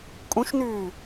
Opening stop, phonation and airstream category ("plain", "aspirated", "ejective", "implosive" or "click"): ejective